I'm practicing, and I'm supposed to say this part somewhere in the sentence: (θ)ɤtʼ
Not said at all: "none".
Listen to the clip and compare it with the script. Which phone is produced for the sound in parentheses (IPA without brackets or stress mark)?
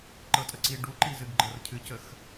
ǃ